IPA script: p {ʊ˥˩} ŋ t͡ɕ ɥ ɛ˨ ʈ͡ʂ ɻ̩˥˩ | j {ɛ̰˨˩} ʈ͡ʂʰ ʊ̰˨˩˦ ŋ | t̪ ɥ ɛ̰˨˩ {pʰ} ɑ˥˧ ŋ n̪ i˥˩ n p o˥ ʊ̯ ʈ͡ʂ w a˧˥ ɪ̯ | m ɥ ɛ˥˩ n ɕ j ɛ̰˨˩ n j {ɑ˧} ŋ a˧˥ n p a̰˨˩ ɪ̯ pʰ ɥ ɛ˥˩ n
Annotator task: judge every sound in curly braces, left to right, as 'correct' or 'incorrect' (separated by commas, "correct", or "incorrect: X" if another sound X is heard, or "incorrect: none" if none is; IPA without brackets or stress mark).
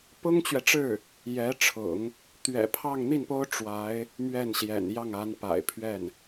incorrect: ʊ˥, incorrect: ɛ˧˥, correct, incorrect: ɑ˥˩